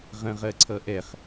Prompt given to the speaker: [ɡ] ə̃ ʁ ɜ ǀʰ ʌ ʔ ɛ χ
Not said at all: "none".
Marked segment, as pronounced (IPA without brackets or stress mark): ʁ